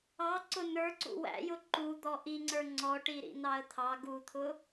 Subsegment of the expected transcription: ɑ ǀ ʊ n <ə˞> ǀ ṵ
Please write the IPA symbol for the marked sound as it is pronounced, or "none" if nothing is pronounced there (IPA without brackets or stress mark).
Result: ə˞